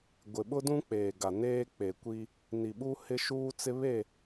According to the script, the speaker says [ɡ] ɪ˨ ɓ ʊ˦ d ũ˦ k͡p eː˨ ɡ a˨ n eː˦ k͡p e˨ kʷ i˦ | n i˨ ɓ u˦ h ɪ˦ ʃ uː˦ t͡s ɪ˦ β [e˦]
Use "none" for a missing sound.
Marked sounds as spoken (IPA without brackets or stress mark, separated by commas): ɡʷ, e˦˨